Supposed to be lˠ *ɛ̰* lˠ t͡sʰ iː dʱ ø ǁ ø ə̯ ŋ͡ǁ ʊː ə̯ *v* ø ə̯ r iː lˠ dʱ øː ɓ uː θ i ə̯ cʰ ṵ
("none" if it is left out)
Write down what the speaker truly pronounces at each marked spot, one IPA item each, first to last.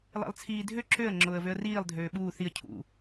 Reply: ɛ̰, v

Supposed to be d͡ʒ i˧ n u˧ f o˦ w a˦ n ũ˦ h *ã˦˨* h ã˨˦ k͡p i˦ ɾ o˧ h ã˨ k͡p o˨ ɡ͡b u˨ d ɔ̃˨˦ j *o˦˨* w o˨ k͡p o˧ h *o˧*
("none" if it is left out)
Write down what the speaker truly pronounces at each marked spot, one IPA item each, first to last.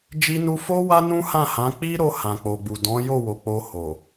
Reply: ã˦˨, o˦˨, o˨

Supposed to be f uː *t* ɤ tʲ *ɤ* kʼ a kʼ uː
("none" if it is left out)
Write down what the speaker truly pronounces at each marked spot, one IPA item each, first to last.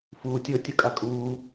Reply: tʲ, ɤ

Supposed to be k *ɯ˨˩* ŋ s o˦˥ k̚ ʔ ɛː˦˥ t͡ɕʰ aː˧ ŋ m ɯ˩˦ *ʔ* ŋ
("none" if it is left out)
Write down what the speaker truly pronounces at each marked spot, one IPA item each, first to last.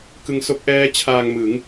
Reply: ɯ˧, none

